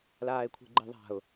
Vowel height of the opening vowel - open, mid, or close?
open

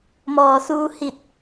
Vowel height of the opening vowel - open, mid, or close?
mid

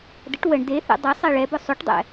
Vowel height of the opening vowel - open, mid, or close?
mid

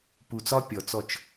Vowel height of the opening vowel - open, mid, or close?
close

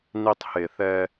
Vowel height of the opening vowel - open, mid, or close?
close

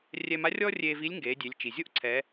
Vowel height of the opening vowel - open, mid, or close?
mid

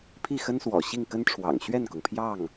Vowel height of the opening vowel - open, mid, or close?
close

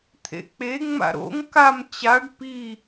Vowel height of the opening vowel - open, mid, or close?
mid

